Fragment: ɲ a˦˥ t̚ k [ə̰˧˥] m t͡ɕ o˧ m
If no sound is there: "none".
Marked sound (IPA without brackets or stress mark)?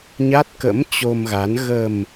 ə̰˧˥